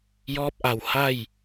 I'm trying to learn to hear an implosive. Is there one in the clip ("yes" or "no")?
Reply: no